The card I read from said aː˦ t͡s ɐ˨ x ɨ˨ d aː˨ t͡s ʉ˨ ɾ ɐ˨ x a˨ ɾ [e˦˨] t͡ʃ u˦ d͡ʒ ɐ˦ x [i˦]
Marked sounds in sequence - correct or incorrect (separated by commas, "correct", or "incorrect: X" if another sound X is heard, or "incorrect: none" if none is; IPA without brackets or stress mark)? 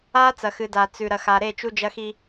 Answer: correct, correct